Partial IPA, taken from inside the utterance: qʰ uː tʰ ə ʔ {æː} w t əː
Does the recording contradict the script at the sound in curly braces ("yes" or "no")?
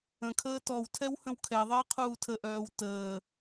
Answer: yes